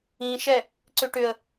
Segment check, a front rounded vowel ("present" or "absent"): present